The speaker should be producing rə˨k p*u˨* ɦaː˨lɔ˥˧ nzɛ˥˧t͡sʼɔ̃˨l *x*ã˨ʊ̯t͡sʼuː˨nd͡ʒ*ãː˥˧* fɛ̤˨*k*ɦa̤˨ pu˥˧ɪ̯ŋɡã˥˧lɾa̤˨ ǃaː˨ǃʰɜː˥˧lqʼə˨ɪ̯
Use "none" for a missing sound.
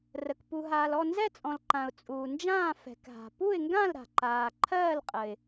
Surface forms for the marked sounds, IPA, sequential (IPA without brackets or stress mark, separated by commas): u˨, ǃ, ãː˥˧, k